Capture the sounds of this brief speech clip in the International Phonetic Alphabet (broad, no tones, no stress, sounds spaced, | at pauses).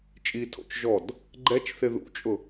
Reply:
t͡ʃʼ i tʰ o̰ t͡ʃ ʒ ɔ d | ɡ͡ǃ ɛ t͡ʃ θ ɪ ð ṵ t͡ʃʼ ʊ